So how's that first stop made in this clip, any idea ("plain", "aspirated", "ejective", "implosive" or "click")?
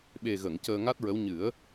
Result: implosive